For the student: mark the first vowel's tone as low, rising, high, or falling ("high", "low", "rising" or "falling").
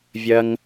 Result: low